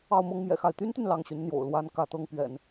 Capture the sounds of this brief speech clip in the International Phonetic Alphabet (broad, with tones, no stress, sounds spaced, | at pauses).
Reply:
ɑ˥˩ ʊ̯ m ɤ˥ ŋ m j ɛ̰˨˩ x a˥˩ ɪ̯ t̪ y˥ n t̪ y˨ n l ɑ˥˩ ŋ ɕ y˧˥ n n̪ j o̰˨˩ ʊ̯ l w a˥ n k ä˥˩ t̪ ɤ˥ ŋ p ɥ ɛ̰˨˩˦ n